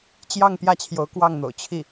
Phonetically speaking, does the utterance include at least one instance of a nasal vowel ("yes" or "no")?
no